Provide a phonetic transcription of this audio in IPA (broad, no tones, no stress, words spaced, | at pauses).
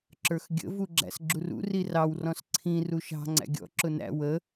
ǁə˞xɡʲə̰ vuɡ͡ǁæ̰sɡ͡ǁurṵ rirɑwrɔ̃s ǀʰĩ ruʃɑ̤ ŋ͡ǀæ̰ɡʲɔ̰ ǁʊnæ̰ wə